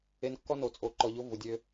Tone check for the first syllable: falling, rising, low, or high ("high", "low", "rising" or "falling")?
rising